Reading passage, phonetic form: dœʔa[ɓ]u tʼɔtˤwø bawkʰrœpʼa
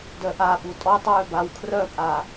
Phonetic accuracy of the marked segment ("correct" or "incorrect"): correct